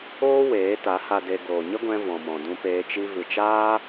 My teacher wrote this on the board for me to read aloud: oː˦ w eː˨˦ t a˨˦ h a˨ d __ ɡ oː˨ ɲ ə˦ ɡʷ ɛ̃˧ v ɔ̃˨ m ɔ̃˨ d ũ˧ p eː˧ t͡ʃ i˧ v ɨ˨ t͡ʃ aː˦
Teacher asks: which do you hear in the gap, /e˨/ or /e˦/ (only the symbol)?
e˨